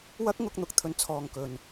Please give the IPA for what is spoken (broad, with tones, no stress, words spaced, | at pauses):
wɐ˥k̚ŋʊ˧k̚ n̪ʊ˧k̚t̪ʰɵ˨˧n t͡sʰɔː˨ŋkɵ˨n